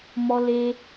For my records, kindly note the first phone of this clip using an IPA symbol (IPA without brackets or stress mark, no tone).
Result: m